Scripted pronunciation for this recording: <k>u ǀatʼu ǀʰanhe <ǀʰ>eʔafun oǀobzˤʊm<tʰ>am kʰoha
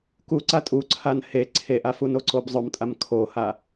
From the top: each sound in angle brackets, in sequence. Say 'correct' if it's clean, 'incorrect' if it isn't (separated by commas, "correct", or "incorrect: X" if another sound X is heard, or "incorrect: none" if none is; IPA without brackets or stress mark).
correct, correct, incorrect: tʼ